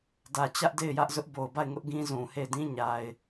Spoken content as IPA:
d ä˨ t͡ɕ ä˦ ʔ d e˦˨ ɪ̯ j ä˦ ʔ z ʊ˦ ʔ b o˨ ʊ̯ b a˦˨ ɪ̯ ŋ ʊ˦ ʔ ɡ ĩ˦ z ũ˨ h e˦˨ ɪ̯ d ĩ˦ ɲ a˦ ɪ̯

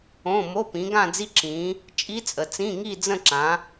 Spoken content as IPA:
õ˧˥˧ m o˧˥˧ p ĩ˨˦ ɡ ã˥˧ d͡z i˦˥ ǁ ĩ˨˦ | t͡ʃʼ i˦˥ t͡sʼ ə˨ t͡s ĩ˧˥˧ ŋ i˥˧ d͡z ə̃˥˧ ǁ ã˨˦

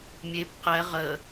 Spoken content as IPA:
mʲ e p q ɛ ʁ ə

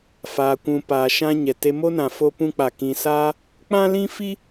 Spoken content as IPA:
f aː˨ kʷ ũ˨ p aː˨ ʃ ã˧ ɲ ɛ˨ t e˧ m o˦ n ã˨ f o˧ p ũ˧ k͡p a˨ k ĩ˨ s aː˧ | k͡p ã˦ l ĩ˦ f i˦

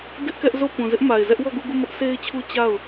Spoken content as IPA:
d ɪ˦ ʔ k ɛ˦ ʔ z o˦˨ p ũ˨ z ɪ˦ ʔ m a˨ ɪ̯ z ɛ˦ ʔ w ɔ˦˨ ɡ u˦˨ ɡ u˦˨ m ʊ˦ ʔ sʰ e˦ ɪ̯ t͡ɕʰ u˦ t͡ɕ a˦˨ ʊ̯

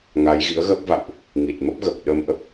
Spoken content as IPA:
ŋ a˨˦ j ɣ ḭ˧˥ ə̯ ɣ əː˦˥ p̚ v a̰˧˨ w ʔ | ŋ i˨˩ t̚ m ə˦˥ p̚ ɣ ə˨˩ p̚ ɗ ə˧ m ʔ ə˦˥ p̚

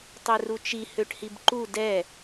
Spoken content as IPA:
tˤ ø r u t͡ʃ i h ø ʈ h i b ǃ u d ɛ

